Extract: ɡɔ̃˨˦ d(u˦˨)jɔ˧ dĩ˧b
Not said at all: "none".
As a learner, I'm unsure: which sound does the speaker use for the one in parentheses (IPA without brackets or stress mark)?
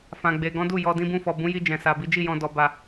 u˦˨